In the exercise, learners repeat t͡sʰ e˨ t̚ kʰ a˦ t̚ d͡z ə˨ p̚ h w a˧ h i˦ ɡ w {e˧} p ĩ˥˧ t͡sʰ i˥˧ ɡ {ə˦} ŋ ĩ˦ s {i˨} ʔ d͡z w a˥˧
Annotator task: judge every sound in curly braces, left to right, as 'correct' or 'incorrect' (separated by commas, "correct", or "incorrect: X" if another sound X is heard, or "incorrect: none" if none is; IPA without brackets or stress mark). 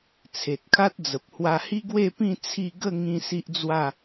incorrect: e˥˧, incorrect: ə˥˧, incorrect: i˦